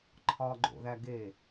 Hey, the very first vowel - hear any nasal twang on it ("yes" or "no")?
no